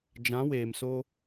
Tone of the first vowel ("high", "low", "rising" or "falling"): rising